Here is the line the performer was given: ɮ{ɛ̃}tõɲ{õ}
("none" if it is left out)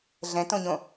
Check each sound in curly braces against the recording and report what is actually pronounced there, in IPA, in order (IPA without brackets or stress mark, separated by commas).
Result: ɛ̃, õ